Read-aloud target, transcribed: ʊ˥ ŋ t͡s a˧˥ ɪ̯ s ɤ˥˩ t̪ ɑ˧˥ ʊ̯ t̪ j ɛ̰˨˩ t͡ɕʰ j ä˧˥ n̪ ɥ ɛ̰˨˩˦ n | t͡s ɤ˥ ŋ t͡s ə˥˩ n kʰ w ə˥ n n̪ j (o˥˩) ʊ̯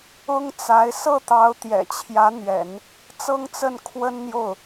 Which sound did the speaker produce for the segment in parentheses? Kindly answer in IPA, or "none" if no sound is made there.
o˥˩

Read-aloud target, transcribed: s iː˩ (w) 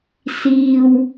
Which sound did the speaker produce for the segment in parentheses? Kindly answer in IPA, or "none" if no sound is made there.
w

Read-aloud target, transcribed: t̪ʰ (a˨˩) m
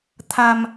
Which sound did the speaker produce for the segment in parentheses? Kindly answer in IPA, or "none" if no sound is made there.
a˨˩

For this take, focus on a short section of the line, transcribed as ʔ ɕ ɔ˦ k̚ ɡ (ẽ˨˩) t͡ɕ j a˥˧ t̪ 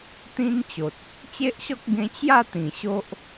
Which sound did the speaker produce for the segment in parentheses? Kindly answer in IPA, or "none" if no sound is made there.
ẽ˧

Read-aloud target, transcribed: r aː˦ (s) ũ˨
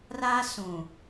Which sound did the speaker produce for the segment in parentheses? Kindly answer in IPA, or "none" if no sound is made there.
s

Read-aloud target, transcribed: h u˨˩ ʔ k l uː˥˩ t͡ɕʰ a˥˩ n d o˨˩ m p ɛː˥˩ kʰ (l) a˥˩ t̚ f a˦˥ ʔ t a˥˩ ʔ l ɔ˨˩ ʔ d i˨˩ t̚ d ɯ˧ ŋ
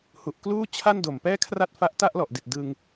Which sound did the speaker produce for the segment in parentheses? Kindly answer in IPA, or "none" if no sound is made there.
r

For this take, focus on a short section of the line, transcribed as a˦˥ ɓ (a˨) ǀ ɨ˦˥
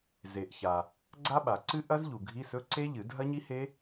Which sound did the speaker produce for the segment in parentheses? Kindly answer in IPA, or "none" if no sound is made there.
a˨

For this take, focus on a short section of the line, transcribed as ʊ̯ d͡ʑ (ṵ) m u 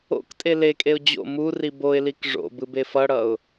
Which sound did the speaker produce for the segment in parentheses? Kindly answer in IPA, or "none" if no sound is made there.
o̰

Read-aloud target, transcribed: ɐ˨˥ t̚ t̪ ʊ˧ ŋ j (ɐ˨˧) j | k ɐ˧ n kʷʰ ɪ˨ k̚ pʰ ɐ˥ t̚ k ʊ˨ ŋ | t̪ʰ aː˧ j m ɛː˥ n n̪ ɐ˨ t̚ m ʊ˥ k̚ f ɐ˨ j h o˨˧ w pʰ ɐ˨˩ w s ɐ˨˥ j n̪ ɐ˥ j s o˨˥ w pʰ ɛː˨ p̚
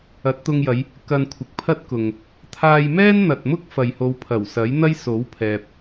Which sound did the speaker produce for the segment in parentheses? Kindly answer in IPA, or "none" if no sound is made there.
ɐ˨˧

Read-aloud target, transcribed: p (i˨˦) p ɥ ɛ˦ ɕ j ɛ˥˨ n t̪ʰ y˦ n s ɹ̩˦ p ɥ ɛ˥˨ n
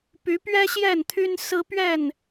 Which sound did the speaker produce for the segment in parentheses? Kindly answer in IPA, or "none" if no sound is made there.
y˨˦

